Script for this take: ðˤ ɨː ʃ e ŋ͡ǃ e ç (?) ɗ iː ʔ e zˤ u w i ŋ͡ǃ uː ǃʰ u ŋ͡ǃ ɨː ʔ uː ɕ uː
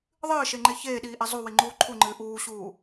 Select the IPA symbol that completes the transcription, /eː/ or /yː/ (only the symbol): eː